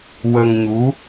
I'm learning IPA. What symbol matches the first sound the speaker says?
w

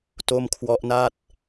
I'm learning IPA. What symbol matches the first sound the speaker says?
t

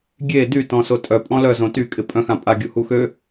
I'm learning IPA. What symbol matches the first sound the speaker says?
ɡʲ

